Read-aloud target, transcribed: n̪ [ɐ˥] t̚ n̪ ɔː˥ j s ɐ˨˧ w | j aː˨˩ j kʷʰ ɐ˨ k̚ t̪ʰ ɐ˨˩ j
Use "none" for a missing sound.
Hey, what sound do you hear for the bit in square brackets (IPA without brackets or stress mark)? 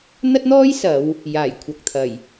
ɐ˥